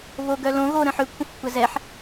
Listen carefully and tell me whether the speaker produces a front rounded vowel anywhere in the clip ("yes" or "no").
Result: yes